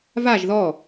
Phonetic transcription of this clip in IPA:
vaʒ ðɔ

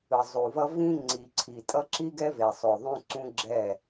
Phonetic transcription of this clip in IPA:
ɯ˨zˤu˨vʌ˦ vĩ˦ŋ͡ǀi˨ǀʰi˨tʼʌ˦ ǁi˦ɡɛ˦ ve˨sˤo˨ðˤũ˦ ǀũ˦ɡ͡ǁɛ˦˨

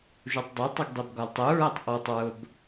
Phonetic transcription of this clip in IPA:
ʒutˤdˤutˤiɡ dˤibɡɒltˤuɹɜtˤ ʔɔtˤɹʊb

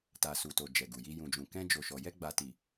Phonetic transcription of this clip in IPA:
ta˨su˨to˨ d͡ʒɛ˨ɡu˨ji˧ jũ˨d͡ʒũ˨ kɛ̃˧d͡ʒo˨ʃɔ˨ jɛ˧ɡ͡ba˨ti˨

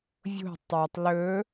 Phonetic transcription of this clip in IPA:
vʲo̤ tˤœtˤ lɵ

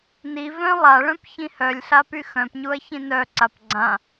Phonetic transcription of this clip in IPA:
nivœ̃ lˠaɭœ̃p çĩhœlʲɬa pyxœ̃pɲuɐ̯ çĩnœǀap ɡ͡ǀã

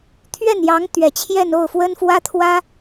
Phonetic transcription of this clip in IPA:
t̪ʰɥɛ˥˩njɑ˧˥ŋ t̪ɥɛ˨˩t͡ɕʰjɛ˥˧n o˥˩ʊ̯fwə˥nfwä˥t̪ʰwä˥

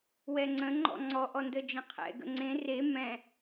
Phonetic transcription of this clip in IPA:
wɛŋ͡ǀə̃ ŋ͡ǃɔ̰ŋ͡ǀɔ ʔɔndəd͡ʒə̃qʰɛ̰ ɡə̰ŋ͡ǀẽ re mɛ̃

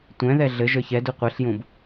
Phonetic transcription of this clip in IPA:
tʷɛ̃ ðɛɮɘʒə˞ çɛdu qʷɘɬjũb

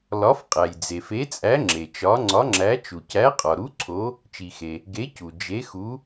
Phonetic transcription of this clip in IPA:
lɒ˨˥fqʼæ˩j d͡ze˩fe˨˥t͡sʼæ˨˥ ŋ͡ǁe˩t͡ʃɒ˨˥ ŋ͡ǀɒ˨˥ŋ͡ǁæ˨˥ t͡ʃu˩cæ˨˥qʼɒ˩ɾu˨˥ ǀʰo˨˥ | t͡ʃi˩xe˩ | ɡe˨˥cu˩ d͡ʒe˨˥xu˨˥

